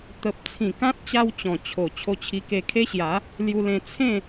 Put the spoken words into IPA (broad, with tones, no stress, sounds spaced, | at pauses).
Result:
t̪ ə˨ p̚ t͡sʰ ĩ˨˩ k ã˦ t̚ t͡ɕ a˦ w t͡ɕ ɔ̃˨˩ t͡ɕʰ o˨˩ t͡ɕʰ o˧ t͡ɕʰ i˧ k e˧ kʰ e˦ ɕ j a˨˦ | l j u˧ l ẽ˧ t͡sʰ ẽ˥˧